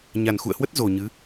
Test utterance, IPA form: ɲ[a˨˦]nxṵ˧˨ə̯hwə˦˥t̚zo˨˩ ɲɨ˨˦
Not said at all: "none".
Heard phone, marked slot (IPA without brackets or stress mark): a˨˩